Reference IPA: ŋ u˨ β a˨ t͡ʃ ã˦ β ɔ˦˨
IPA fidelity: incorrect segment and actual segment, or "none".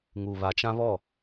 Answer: none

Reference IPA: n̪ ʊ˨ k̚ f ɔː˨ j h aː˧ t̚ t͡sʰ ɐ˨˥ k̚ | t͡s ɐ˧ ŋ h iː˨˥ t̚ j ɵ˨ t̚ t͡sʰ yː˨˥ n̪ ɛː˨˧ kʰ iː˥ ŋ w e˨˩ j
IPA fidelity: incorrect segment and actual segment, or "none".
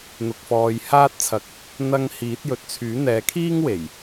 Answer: t͡s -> n̪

